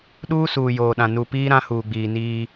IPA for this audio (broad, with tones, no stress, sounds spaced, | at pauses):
ɗ uː˦ s uː˨ j oː˨ ɗ ã˨ n u˨ p iː˦ ɾ ã˦ h uː˨ ɡ͡b iː˨ n iː˦